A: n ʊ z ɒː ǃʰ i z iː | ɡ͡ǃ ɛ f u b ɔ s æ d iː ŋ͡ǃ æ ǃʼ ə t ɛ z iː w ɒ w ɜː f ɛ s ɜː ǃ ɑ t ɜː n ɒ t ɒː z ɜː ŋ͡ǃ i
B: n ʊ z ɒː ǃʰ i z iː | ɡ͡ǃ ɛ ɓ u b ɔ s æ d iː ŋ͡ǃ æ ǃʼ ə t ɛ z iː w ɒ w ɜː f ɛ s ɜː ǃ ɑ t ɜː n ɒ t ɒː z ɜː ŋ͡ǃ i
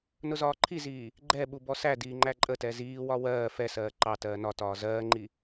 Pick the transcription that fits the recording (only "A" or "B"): B